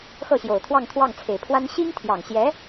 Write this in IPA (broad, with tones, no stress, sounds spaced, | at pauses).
x ɤ˥˩ ɕ j o˨˩ ʊ̯ t̪ʰ w ɑ˥˧ ŋ t̪ʰ w ɑ˥˩ ŋ t͡sʰ e˨˩ ɪ̯ pʰ w a˥ n ɕ i˥ ŋ t̪ʰ j ɑ˨˩ ŋ ɕ j ɛ˧˥